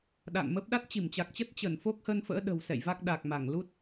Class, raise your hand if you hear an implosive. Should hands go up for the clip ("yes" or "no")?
yes